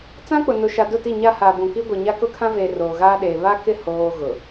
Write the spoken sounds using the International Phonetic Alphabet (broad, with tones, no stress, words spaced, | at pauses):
t͡sã˦k͡pʊ˨nʊ˨ʃa˨ dʊ˦˨ti˦˨ ɲa˦haː˨bũ˨ki˦ ɡʷi˨ɲa˦ kʊ˦kʰã˦veː˨ roː˨ɣaː˦ɗeː˨ βa˦kɪ˦˨ hoː˨ ɣʊ˨